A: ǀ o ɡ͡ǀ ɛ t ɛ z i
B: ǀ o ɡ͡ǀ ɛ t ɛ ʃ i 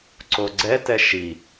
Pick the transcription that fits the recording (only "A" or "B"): B